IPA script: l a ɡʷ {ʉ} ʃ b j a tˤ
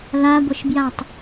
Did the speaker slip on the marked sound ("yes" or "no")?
yes